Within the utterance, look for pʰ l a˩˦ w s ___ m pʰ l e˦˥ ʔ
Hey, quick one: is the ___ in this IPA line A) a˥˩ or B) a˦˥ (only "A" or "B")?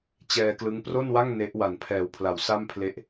A